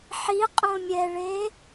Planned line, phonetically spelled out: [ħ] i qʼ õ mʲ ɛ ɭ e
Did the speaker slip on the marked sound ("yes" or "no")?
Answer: no